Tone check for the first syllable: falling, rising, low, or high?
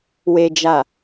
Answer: low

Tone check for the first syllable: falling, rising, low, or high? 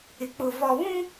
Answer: low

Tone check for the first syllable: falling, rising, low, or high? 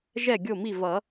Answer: falling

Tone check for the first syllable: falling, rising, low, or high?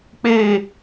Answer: falling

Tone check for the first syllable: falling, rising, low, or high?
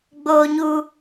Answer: high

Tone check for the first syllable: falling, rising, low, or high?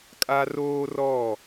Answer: high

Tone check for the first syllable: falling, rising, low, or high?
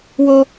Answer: high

